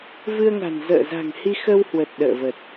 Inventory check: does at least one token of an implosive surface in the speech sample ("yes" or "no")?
yes